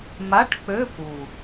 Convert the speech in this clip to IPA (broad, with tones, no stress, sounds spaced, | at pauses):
m a˧˥˧ ʈ k͡p ø˧˥˧ p u˨˩